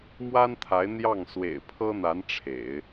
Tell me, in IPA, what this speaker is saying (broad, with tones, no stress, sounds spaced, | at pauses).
m w a˥ n t̪ʰ a˧˥ ɪ̯ n̪ j ɑ˥˩ ŋ s w ḛ˨˩ ɪ̯ pʰ ɤ˥ n̪ a˧˥ n ʈ͡ʂʰ ḛ˨˩˦ ɪ̯